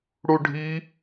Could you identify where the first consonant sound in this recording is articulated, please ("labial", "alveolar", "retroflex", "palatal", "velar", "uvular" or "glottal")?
retroflex